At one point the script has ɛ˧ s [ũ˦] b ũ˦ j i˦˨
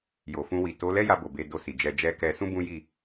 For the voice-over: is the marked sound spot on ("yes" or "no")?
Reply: yes